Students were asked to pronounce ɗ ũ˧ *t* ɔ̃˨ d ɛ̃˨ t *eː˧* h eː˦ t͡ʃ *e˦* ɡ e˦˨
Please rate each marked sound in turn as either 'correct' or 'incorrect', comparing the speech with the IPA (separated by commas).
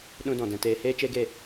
incorrect, correct, correct